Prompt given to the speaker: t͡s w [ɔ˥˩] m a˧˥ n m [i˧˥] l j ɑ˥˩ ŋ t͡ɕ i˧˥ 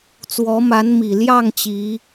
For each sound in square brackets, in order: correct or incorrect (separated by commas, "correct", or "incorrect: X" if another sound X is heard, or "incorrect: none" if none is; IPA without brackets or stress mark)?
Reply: incorrect: ɔ˧˥, incorrect: i˨˩